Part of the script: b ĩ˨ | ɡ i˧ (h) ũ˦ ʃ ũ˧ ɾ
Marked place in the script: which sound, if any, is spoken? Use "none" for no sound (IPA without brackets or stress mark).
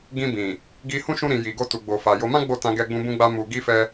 h